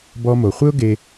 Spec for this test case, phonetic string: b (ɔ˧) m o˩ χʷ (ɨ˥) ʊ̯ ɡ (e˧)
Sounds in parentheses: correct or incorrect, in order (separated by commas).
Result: correct, incorrect, correct